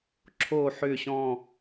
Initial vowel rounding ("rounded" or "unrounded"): rounded